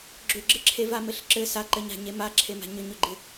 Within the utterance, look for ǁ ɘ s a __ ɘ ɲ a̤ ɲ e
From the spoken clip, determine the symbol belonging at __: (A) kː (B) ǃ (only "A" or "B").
B